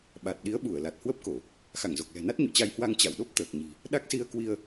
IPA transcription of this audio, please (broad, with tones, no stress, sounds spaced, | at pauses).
ɓ a˨˩ t̚ ɗ i˨˦ ə̯ ɓ u˧˩ ə̯ l a˨˩ t̚ h w ə˦˥ p̚ k o˧˩˨ | x a˧˩ ŋ z o˨˩ k̚ l ɛ̤˨˩ n a˦˥ t̚ ɲ ṵ˧˨ t͡ɕ a˧ j h w a˧ ŋ t͡ɕ a̰˧˨ w ɗ o˦˥ p̚ t̪ əː˨˩ k̚ ɲ i̤˨˩ | ɗ a˦˥ k̚ s i˧ ə̯ k w i˧ ə̯